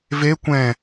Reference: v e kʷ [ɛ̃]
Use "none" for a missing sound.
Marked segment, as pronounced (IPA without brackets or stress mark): ɛ̃